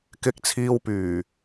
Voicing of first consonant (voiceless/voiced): voiceless